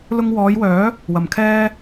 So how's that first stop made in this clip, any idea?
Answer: aspirated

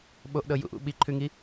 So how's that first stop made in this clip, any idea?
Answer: implosive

